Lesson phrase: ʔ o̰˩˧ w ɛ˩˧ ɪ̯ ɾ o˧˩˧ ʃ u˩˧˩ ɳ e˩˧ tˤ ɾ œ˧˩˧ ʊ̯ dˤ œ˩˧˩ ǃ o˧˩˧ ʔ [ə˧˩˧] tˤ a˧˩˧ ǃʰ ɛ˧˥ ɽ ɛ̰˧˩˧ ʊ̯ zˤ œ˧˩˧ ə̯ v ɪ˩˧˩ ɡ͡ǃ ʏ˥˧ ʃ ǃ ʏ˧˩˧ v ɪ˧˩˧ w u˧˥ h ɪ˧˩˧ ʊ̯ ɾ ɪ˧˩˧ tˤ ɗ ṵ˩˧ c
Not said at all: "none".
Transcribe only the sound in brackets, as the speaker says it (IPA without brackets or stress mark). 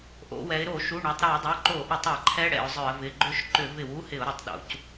ʏ˧˩˧